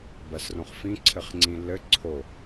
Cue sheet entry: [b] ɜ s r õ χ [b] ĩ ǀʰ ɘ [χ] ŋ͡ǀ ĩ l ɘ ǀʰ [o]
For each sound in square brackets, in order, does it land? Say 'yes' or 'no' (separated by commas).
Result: yes, no, yes, yes